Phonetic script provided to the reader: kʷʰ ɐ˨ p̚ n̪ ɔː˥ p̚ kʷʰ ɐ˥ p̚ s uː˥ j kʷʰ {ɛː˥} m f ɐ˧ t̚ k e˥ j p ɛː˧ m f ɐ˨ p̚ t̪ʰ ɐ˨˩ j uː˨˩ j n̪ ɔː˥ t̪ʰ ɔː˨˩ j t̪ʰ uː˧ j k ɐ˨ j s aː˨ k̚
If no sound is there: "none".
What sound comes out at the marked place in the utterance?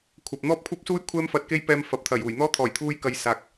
ɛː˥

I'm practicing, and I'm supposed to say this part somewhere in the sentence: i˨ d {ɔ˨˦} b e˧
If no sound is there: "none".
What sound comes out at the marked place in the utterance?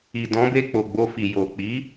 ɔ̃˨˦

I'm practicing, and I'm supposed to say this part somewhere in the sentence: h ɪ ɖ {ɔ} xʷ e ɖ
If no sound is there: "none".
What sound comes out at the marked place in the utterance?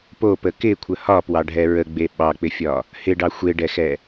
ɑ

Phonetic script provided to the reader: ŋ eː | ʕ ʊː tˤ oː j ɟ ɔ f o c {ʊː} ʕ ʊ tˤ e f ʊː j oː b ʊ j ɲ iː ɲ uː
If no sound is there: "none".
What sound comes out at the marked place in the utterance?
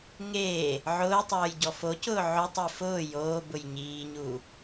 ʊː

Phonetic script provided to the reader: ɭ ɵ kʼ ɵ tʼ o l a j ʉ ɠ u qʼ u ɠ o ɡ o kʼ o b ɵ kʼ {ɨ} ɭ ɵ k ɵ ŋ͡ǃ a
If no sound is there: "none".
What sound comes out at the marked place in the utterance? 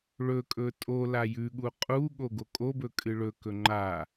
ɨ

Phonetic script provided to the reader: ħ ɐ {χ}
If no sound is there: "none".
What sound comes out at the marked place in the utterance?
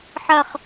χ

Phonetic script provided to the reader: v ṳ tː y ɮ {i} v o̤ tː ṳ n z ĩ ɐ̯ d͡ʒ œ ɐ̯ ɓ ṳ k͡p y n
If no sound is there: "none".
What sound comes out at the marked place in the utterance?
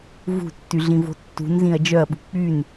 ĩ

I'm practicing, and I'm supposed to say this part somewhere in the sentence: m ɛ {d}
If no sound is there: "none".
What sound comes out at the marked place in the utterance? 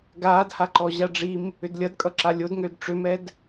d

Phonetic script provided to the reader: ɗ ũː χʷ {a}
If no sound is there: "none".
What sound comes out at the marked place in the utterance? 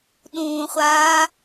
aː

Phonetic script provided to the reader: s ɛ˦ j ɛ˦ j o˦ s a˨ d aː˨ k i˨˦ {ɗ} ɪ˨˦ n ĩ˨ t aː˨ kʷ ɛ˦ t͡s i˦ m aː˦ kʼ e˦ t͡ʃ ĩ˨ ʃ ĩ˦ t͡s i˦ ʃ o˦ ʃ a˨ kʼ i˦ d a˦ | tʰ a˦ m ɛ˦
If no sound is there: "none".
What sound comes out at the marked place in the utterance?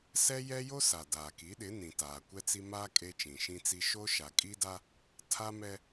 ɗ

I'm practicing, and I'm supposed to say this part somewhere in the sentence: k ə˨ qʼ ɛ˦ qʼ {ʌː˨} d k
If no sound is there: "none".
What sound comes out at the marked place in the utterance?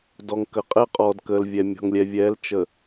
ɔː˨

